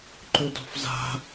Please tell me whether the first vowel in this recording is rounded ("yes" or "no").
yes